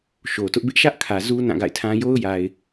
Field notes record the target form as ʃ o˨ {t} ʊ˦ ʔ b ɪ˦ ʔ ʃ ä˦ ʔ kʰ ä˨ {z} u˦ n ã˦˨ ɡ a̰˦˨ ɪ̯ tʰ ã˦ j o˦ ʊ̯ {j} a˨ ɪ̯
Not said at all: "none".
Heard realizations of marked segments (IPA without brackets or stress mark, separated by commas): t, z, j